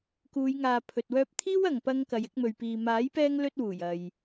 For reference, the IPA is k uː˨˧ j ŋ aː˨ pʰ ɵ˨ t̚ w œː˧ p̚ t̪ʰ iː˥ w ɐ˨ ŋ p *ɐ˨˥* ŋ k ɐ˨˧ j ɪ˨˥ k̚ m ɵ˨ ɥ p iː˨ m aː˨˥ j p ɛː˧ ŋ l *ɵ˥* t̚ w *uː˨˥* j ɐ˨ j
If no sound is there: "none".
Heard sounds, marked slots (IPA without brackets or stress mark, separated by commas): ɐ˧, ɵ˥, uː˨˩